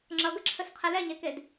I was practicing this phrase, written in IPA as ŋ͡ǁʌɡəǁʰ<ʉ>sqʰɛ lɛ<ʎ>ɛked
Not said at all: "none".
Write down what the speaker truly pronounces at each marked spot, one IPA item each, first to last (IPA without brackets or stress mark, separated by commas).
ə, ɲ